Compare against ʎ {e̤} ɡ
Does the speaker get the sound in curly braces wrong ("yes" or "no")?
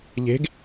no